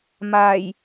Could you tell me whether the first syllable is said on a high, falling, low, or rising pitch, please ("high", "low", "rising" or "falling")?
low